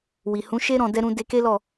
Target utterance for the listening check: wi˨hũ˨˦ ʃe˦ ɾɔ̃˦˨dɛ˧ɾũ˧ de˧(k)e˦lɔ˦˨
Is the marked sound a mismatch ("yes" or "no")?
no